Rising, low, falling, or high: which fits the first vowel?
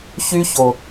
high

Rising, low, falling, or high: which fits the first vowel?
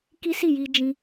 high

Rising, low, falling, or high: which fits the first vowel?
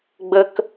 low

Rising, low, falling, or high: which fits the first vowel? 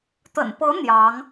low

